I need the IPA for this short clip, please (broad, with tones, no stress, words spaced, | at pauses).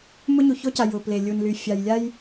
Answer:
mʊ˦ɲu˨ço˦ca˨ jʊ˨ple˨lʲu˨n ly˨fʲa˨jlʲa˦j